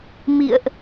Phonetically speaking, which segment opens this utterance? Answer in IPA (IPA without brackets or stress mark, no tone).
m